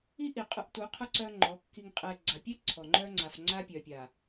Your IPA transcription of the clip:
i˦ ʔ i˨ qʼ ʊ˨˦ ʔ t u˨˦ qʰ ʊ˦ ǀ œ˦ ŋ͡ǃ ɔ˨˦ kː i˨ ŋ qʼ ɛ˨ ɡ͡ǀ a˨ pʲ ɛ˦ ǀʰ ɔ˨ ŋ͡ǃ œ˦ ŋ͡ǀ a˨ f ŋ͡ǀ a˦ pʲ œ˨ pʲ a˨

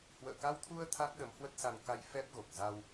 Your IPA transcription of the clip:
h w ə̰ː˧˨ k a˧ w t̪ʰ u˧ ə̯ t̪ʰ a˦˥ k̚ ɗ ə˨˦ m h w ə˦˥ t̚ s a˧ n k a˧ j f ɛ˦˥ p̚ ɣ o˨˩ k̚ z a˧ w

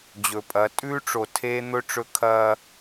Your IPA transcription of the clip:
d͡ʑ ɵ˨ pʼ ɐ˨˦ tʼ ʉː˦ ʈ͡ʂ o˨ tʰ eː˦ n̪ ɵ˦ ʈ͡ʂ ɵ˦ kʰ ɐː˦

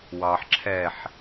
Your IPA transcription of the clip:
w ɑ ħ ǁʰ ɛ ħ

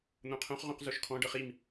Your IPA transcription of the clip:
n̪ õ qʰ õ χ ʁ õ q z o ʃ kʰ ɔ̃ ɖ ɤ χ i m

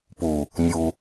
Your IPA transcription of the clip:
p u | nʲ u

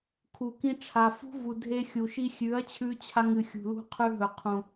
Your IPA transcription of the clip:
kʰ u˨ k ĩ˧ ʈ͡ʂʰ a˨ f ṳ˦ v u˨ dʱ e˧ xʲ u˨ ʃ i˦ xʲ ʉ˨˦ ɐ̯ t͡ɕʰ ʉ˧ t͡ɕʰ a˧ ŋ ɨ˨ xʲ ṳ˨ l ṳ˧ qʰ ʉ˧ ɦ ɵ˨ qʰ ũ˨

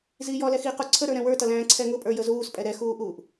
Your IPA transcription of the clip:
z iː j ɔ l ɛ x iː q u ǀʰ ə ɾ ə˞ ɾ ɛ̃ w ə˞ t ʌ l æ̃ː ǀʰ ɛ ŋ ʊ pʼ ə˞ j ə z uː s pʼ ɛ ɾ ɛ x uː ʔ uː ʔ

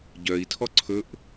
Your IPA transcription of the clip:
ɟ œ i̯ tʰ ɔ ǀʰ ɵ ʔ

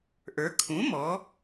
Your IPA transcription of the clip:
ʔ ə˞˩˧ kʰ ũ˩˥ m ɔ˩˧

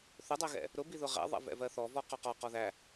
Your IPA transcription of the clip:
θ ʊ dˤ ɜ ɣ ɛ̰ | ɾ ʊ b i ð ʊ ʁ ɛ̰ ðˤ ɛ̰ v ɛ̰ v ɜ θ ɔ v ɔ q ɒ q ɒ q ɔ ð æ

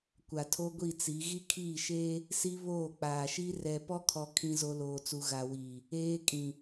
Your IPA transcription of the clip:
kʷ a˨ tʰ o˦ ɡʷ i˦˨ t͡s i˨˦ ɣ i˦ kʰ iː˦˨ ʃ eː˦ | s i˦ β oː˦˨ k͡p aː˨ ʃ i˦ r ɛ˨ p ɔ˦ kʰ ɔ˨ kʰ ĩ˦ z o˦ l oː˨ t͡s u˨ ɣ a˨ w iː˨ | eː˦ kʼ ĩ˨

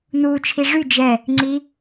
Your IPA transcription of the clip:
n uː t͡ʃʰ i ʐ y d͡ʒ ɛ | ŋ͡ǀ i

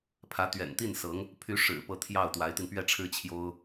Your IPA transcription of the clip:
pʰ ä˧˥ t̪ ɥ ɛ̰˨˩ n t̪ i˥˩ n s ɤ˧˥ ŋ | pʰ y˧˥ ʂ ɻ̩˨˩ p ɤ˥˧ t̪ʰ j ɑ˥˩ ʊ̯ t̪ w a˧˥ ɪ̯ t̪ i˧ n p ɥ ɛ˥˩ ʈ͡ʂʰ ɻ̩˥ t͡ɕʰ j o˥ ʊ̯

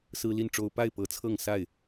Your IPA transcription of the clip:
s ɹ̩˦ l i˥˨ n ʈ͡ʂ o˦ ʊ̯ p a˥˨ ɪ̯ p ɤ˨˦ t͡sʰ ɤ˥˨ ŋ s a˥˨ ɪ̯

